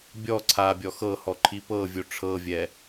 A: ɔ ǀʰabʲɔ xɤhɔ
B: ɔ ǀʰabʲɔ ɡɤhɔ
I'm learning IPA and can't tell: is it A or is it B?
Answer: A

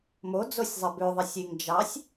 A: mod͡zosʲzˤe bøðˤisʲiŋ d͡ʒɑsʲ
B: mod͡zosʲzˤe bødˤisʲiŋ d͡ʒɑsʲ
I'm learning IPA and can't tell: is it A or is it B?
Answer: A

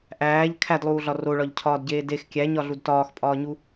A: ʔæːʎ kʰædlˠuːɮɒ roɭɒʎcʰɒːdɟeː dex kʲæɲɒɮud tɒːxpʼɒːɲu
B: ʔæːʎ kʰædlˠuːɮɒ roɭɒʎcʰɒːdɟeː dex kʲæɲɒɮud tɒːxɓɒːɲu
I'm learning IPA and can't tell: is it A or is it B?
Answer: A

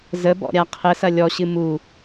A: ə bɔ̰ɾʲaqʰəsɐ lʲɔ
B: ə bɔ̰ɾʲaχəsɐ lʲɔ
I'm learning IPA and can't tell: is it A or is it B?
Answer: A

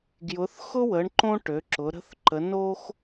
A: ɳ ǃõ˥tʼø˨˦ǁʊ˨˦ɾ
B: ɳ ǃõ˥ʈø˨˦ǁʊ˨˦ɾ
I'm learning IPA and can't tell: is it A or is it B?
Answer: B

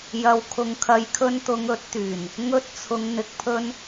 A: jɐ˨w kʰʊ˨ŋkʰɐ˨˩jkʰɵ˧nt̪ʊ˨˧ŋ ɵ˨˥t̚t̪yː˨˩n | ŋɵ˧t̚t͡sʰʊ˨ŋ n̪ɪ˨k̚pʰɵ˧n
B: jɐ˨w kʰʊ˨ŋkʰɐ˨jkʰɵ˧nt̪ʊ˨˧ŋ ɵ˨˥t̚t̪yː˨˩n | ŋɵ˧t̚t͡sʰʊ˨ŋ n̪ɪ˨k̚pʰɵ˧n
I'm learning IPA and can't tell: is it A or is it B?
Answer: B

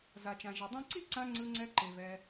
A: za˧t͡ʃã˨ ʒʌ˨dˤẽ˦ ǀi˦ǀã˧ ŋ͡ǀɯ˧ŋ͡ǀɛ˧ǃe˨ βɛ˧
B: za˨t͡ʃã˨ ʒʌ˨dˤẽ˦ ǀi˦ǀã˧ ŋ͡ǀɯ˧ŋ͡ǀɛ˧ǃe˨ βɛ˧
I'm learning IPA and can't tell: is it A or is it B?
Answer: B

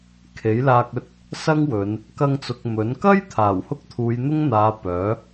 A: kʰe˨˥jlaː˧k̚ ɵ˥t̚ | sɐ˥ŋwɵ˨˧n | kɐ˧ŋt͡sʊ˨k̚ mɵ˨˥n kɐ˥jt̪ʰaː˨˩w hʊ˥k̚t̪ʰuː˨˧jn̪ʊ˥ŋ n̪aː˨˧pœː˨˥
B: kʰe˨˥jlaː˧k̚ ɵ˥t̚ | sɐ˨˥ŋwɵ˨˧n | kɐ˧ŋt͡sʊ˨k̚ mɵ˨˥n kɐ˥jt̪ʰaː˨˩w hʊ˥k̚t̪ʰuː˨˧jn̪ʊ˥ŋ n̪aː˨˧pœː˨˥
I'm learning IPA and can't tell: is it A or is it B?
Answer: A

